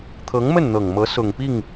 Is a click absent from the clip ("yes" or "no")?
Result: yes